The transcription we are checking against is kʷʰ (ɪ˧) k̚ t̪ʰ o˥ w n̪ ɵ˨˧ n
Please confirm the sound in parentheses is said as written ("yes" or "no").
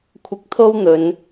yes